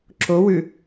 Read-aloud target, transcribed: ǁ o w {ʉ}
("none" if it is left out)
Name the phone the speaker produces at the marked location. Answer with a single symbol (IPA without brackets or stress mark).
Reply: ʉ